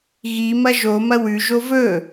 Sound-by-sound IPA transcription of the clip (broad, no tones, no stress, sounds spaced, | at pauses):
ɣ i m ɐ ʒ o m ɐ w ʉ ʒ o v ɵ